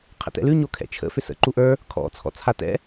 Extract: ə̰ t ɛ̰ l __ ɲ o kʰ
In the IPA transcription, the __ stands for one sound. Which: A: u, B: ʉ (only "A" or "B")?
B